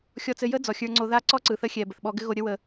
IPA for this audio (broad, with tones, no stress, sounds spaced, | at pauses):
xʲ ɔ˧ t͡s ɘ˧ j ə˦ d͡z ɔ˨ xʲ ə˞˧ ŋ͡ǀ o˧ ð a˦ ǀ ɔ˦ ǀ ɯ˨ θ ə˧ xʲ ɛ˨ b ə˨ θ ɓ ɔ˧ ɡ ɘ˦ ɣ o˧ ɾʲ ə˦ w ə˧